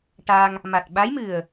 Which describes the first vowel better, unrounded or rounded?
unrounded